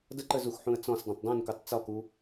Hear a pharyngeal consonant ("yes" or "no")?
yes